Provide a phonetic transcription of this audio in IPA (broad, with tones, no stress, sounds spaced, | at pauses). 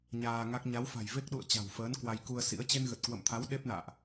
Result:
ɲ aː˧ ŋ a˦˥ k̚ ɲ a˨˦ w f a̤˨˩ j v e˦˥ k̚ ɗ ṵ˧˨ ə̯ t͡ɕ a̤˨˩ w f əː˨˦ n k w a˧ j k u˧ ə̯ s ḭ˧˥ ə̯ t͡ɕ e˧ n ɣ ə˨˩ t̚ k w ə̰˧˨ m t̪ʰ a˨˦ w ɗ e˦˥ p̚ n a̰ː˧˨ ʔ